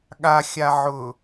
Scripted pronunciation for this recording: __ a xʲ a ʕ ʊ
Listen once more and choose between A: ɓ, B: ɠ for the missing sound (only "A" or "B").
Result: B